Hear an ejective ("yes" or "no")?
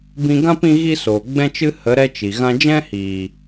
no